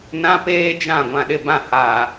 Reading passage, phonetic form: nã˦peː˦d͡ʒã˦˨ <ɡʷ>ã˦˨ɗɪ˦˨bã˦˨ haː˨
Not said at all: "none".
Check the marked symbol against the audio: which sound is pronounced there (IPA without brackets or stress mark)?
ɡʷ